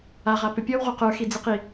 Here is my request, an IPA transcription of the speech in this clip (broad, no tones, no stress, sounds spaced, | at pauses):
a ʁ a p ʏ pʲ ɔ w ʁ u q ə˞ x i d͡z e q i